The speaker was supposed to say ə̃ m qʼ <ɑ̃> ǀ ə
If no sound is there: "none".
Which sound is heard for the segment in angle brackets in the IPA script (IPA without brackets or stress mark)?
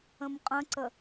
ə̃